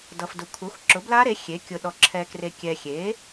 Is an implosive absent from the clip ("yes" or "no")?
no